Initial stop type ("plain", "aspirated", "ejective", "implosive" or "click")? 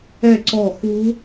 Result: click